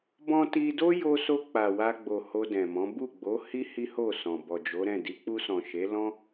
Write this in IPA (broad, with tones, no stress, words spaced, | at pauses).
bɔ̃˧ti˧do˦ jo˧so˧ k͡pa˨wa˧ɡ͡bo˨ ho˧dɛ̃˨mɔ̃˨˦ bu˦˨ɡ͡bo˨˦hi˦ hi˦ho˦˨sɔ̃˨ bɔ˨d͡ʒo˨˦ɾɛ̃˦˨ di˨˦k͡pu˧sɔ̃˨ ʃe˨˦lɔ̃˦